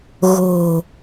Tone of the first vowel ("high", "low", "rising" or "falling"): low